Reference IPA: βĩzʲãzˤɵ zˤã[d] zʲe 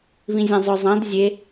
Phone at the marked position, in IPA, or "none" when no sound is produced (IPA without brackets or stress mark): d